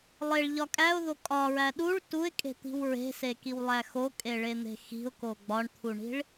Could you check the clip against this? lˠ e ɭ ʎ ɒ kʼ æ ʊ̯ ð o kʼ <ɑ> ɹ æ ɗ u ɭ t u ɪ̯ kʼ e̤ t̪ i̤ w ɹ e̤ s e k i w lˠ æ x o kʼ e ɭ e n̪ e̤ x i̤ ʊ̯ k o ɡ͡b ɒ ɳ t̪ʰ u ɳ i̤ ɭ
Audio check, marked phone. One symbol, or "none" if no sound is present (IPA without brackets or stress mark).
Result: ɒ